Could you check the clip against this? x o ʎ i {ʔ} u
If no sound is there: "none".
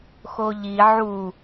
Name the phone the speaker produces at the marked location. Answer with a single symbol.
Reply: ʕ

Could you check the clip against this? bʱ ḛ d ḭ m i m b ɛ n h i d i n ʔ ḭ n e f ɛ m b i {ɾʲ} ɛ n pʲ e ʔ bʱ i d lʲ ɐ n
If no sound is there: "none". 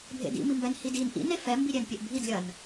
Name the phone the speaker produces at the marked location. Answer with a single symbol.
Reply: ɾʲ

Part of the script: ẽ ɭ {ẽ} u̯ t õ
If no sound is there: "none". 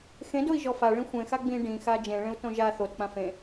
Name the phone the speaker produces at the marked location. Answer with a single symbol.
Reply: ẽ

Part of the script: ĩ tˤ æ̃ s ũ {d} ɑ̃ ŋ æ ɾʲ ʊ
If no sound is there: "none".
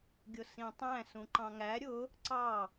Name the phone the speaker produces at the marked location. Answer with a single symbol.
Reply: ǃ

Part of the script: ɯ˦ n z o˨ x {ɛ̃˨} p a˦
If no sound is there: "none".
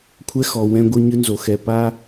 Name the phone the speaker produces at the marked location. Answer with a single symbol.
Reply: ɛ˨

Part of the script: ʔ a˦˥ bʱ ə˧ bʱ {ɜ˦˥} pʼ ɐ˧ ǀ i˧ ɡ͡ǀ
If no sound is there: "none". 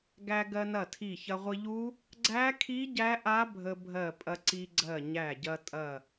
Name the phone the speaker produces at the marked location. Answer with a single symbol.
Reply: ɜ˧˩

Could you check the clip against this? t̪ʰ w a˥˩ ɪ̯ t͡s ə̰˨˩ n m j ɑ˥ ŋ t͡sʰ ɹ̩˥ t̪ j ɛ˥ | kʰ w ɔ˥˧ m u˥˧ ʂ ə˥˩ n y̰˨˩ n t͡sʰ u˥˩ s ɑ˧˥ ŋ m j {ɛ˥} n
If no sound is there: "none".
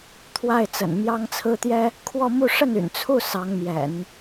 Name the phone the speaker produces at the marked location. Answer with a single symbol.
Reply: ɛ̰˨˩˦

